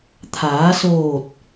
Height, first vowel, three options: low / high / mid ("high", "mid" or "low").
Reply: low